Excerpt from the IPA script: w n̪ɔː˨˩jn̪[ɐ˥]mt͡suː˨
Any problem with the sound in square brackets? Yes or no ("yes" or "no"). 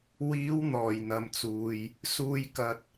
yes